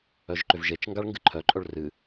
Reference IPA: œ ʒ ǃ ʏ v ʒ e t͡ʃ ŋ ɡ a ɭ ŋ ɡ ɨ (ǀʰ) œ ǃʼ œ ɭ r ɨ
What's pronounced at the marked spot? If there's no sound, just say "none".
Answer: ǃʰ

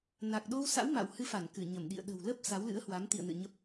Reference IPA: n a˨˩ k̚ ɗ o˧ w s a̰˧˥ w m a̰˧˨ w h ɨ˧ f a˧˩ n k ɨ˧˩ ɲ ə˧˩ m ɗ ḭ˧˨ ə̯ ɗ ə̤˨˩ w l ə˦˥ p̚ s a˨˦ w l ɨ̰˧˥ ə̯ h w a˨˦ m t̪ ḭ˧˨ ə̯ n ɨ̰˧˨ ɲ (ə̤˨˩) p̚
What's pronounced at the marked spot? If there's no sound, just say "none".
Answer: ə˦˥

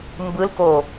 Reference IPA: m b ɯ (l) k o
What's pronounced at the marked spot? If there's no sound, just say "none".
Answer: l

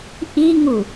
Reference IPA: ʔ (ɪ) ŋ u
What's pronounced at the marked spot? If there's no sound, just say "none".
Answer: i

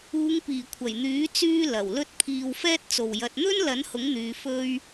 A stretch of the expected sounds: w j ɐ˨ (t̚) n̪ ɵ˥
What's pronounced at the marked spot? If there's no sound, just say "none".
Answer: t̚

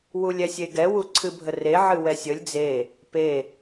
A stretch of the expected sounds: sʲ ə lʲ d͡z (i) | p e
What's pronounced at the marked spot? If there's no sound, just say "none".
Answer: e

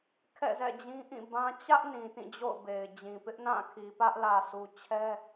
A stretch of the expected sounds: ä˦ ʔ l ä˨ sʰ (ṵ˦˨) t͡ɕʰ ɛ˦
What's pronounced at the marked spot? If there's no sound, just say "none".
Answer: u˨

